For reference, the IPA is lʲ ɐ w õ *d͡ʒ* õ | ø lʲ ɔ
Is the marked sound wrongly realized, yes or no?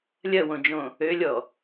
no